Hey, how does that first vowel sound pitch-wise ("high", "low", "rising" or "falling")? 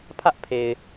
high